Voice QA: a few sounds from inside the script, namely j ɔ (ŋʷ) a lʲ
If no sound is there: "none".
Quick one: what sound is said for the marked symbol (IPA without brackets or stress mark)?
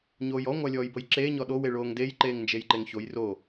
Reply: ŋʷ